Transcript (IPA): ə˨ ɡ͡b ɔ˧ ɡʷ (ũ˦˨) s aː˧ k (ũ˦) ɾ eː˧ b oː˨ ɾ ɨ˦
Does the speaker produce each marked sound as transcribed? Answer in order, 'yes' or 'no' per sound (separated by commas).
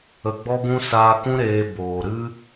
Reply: no, yes